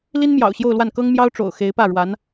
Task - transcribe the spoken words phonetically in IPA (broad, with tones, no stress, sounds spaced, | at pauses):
l i˥ n m j ɑ̰˨˩ ʊ̯ ɕ j o˥˧ ʊ̯ l w a˥˩ n k ɤ˥ ŋ m j ɑ˥ ʊ̯ ʈ͡ʂ o̰˨˩ ʊ̯ x e˧˥ ɪ̯ p ä˥˩ ɻ w a˧˥ n